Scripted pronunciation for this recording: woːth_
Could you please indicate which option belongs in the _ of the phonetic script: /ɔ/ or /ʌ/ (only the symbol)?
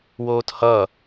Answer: ʌ